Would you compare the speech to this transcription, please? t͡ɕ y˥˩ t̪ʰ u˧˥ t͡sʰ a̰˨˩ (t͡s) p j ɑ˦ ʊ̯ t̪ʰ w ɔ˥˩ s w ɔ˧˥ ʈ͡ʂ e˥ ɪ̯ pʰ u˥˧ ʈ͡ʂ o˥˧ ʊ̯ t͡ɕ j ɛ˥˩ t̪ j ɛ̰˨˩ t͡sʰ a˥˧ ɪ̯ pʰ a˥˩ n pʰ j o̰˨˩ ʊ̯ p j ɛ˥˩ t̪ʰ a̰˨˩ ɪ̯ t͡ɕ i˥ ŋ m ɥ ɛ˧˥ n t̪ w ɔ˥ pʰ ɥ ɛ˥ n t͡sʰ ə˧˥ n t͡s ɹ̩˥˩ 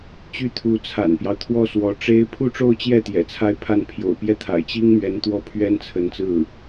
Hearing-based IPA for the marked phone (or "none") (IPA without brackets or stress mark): n